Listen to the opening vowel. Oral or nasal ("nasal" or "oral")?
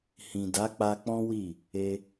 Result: nasal